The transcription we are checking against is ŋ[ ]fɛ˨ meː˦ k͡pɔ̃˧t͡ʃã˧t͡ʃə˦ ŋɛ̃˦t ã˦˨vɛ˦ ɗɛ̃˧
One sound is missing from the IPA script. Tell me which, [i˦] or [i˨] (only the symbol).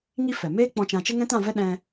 i˦